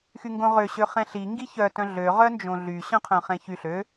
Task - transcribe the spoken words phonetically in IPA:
xyŋɡõʁøɕø χɛ̃ɬi ŋɡiçœtœ̃ ɮøʁœ nd͡ʒõɮy ɕœ̃qʰœ̃χɛ̃çy ɬø

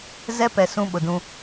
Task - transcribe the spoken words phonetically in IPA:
zɛ˦pɛ˨ sũ˦ɓʊ˨dũ˦

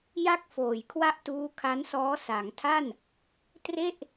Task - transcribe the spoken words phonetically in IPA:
ja˥˩k̚foː˨˩jkʰwa˥˩ʔtuː˦˥ kʰa˦˥nsɔː˦˥ sa˩˦ŋtʰa˥˩n | tre˥˩ʔ

